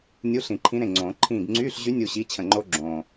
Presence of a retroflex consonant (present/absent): absent